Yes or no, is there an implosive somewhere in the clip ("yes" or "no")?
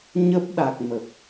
yes